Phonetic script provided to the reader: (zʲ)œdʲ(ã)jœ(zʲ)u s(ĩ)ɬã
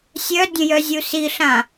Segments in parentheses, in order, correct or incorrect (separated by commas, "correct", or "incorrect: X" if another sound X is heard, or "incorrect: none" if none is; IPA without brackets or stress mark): incorrect: sʲ, incorrect: ə̃, correct, incorrect: i